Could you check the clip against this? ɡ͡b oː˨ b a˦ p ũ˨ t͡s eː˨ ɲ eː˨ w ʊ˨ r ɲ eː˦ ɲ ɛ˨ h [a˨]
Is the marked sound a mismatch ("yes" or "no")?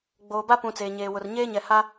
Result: yes